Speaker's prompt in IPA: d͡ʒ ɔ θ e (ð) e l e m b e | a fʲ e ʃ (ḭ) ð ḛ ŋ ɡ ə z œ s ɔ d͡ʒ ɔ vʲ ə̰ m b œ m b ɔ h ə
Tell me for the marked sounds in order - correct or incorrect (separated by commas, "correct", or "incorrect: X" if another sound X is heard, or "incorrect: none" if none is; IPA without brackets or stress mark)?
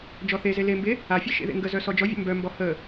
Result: incorrect: z, incorrect: ḛ